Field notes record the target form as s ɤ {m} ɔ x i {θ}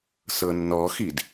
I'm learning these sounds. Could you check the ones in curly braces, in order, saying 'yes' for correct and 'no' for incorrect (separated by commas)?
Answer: no, no